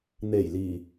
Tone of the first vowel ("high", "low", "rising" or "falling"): low